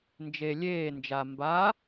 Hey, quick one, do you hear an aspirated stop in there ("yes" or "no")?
no